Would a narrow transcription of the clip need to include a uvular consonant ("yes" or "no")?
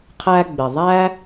yes